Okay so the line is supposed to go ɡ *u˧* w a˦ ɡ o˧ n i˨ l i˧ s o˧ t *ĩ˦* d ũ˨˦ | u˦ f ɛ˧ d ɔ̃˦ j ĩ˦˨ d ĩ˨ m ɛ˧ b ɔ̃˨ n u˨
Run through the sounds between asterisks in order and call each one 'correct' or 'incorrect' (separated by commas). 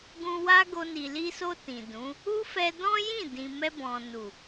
incorrect, incorrect